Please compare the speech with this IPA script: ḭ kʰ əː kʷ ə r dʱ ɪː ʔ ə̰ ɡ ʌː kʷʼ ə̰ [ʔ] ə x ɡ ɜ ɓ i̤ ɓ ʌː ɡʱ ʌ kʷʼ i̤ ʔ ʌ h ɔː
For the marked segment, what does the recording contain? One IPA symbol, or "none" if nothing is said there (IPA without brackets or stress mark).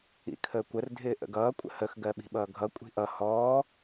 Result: h